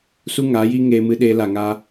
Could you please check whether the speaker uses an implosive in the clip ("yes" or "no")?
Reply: yes